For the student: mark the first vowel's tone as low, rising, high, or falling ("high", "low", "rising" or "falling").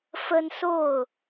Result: high